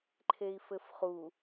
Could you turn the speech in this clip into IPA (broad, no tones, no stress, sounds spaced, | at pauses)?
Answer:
ǃʰ e i̯ f ɘ f χ u